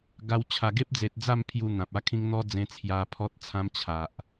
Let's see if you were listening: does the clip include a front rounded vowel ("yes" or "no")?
no